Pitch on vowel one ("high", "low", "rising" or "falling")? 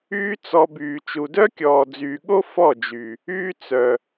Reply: high